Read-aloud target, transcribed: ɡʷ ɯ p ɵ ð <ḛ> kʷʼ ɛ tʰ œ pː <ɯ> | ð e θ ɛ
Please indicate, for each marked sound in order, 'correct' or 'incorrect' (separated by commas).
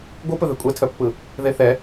incorrect, correct